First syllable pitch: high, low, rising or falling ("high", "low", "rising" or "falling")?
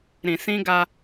low